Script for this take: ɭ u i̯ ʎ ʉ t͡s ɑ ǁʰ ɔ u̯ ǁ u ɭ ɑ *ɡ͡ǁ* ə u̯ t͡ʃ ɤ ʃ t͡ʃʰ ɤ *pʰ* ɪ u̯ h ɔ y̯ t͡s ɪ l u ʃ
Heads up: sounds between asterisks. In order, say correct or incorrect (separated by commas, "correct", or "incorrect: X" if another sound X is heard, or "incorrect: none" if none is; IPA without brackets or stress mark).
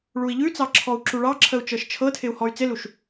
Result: incorrect: ǁʰ, incorrect: tʰ